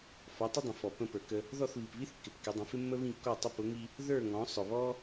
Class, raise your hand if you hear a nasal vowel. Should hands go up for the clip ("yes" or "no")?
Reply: yes